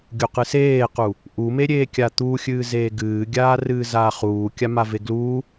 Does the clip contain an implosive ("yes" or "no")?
no